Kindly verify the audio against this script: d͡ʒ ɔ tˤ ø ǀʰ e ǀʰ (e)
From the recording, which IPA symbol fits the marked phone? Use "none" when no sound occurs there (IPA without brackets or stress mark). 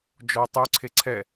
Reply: ɛ